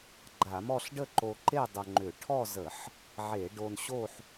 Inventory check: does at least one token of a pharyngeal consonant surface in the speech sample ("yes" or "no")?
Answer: yes